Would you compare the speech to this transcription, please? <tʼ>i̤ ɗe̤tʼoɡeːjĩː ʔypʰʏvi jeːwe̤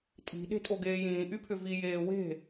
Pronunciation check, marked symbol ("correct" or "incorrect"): correct